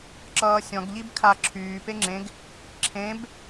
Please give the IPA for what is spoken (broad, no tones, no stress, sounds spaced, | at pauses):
ǁ ʌː sʲ ɔ̃ ɡ ʎ i b kʰ a ǁʰ yː p e ŋ͡ǁ ẽ ɡ | ǁʰ ẽ b